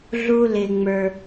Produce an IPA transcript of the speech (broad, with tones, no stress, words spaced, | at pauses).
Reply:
ɮu˧ lɪ˩ŋ͡mə˞˩